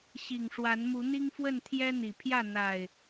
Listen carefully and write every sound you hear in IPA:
ɕi˨˩ŋʂwa˨˦nmu˨˦ n̪i˦ŋfwə˥˨n t̪ʰjɛ˦n̪i˨˩pʰjä˥˨ n̪a˨˩ɪ̯

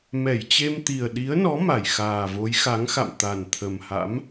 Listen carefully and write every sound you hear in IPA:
mɛ˧˩jt͡ɕe˧mt̪i˨˩ə̯ ɗi˨˦ə̯nɔ˨˦ ma˧˩jxaː˨˩vo˨˦j xa˨˦ŋxa̰˧˨m t̪a˨˩nt̪ʰə˨˩mha̰˧˥m

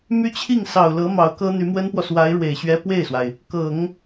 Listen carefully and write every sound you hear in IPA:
my˥t͡ɕʰi˥˩ŋ sɑ˨˩ʊ̯lɤ˧˥ mɑ˧˥ʊ̯kɤ˥n̪y˧˥ mwə˥npwɔ˨ swa˧˥ɪ̯ ɻwe˨˩ɪ̯ɕɥɛ˥ pwe˥˩ɪ̯swa˩ɪ̯ | kɤ˨˩˦ŋ

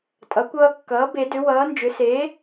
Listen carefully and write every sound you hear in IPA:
tʼʌ˩˥kʷʌː˦ kːʌː˩˥ be˨˩˦dʏ˩˥ wʌː˩˥nd͡ʒʏ˩˥ seː˩˥

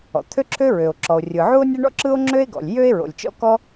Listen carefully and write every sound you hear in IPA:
ɔ̰˩t̪ʰø˥ǁʰø˥ɹø˩o̯ ǁɔ˩o̯rʲɯ˩ ʕu˥o̯nʲɐ˥ɳɔ̰˥ǁɯ˥o̯ ŋ͡ǁø˥e̯ɡɔ̰˩lʲ jø˥e̯ɹo̰˩lʲt͡ʃɔ̰˥ kɔ˥

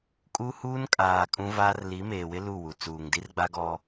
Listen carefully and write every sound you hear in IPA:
kʼu˦huː˦nkʼaː˨ kʼũ˦vaː˦r li˨˦meː˨wɪ˦ lu˦˨wu˨ t͡suː˨ŋdi˦rɡ͡ba˦ɡɔ˦

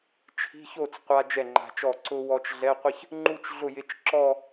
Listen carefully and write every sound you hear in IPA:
t͡ʃʰi̤˧˥˧ço˥˩t͡s qʷa˧ d͡ʒɛ˥˩ŋ͡ǃa̤˧t͡ʃɔ˥˩ ǀʊ˧ wɔ˧t͡ʃɮɛ˧˥˧qʷɪ˥˧ç | ŋ͡ǃu˥˧t͡ʃɮʊ˥˩jɪ˧˥t͡ʃ ǁɔ˥˧

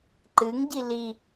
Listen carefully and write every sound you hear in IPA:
ǃɨŋɟi li

